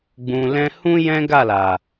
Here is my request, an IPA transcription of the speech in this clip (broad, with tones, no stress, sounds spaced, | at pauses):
ɡ͡b ũ˨ l ɛ̃˧ h ũ˦ j ɛ̃˦ ɡ a˦˨ l a˨